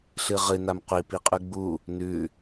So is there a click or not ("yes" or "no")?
no